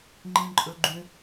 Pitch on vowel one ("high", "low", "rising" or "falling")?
low